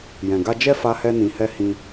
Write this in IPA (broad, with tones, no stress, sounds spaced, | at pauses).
j ɛ̃˨ ɡ a˧ d͡ʒ ɛ˦ f a˧ h ɛ˧ n ĩ˨ h ɛ˧ h ĩ˧